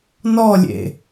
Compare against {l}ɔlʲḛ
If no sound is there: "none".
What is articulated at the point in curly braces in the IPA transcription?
n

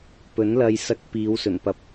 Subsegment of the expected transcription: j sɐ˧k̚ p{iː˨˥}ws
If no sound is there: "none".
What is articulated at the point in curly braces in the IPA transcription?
iː˨˧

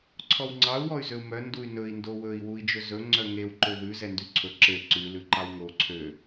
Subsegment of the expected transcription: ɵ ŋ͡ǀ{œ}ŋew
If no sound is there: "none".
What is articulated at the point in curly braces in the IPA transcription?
œ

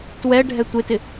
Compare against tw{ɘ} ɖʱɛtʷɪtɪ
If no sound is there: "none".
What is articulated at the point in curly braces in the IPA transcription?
ɛ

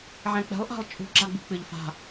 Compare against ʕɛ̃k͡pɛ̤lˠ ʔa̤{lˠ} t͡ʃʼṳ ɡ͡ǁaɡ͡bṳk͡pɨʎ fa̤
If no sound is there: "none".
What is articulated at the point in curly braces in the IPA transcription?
lˠ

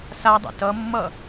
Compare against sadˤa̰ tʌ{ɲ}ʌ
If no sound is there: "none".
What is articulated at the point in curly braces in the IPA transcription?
mː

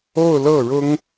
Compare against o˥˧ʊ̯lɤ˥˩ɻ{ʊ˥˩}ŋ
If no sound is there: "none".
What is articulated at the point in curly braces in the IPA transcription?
ʊ˥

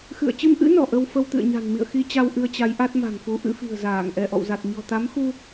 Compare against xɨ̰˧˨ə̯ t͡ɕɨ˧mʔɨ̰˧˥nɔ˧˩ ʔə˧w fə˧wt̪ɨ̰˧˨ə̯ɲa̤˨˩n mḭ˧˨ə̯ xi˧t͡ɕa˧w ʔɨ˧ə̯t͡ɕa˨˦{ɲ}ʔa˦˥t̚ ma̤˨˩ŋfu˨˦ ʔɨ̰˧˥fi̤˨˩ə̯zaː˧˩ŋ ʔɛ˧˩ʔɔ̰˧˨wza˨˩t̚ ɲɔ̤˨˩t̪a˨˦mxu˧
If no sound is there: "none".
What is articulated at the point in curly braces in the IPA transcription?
j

